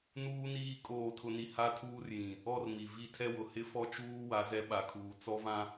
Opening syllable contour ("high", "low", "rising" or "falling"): high